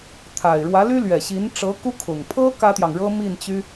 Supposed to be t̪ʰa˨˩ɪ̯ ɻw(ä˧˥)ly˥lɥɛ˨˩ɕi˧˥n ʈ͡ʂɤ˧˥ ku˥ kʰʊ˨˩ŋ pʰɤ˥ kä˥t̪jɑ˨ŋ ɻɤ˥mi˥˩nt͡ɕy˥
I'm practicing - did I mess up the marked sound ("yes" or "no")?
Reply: no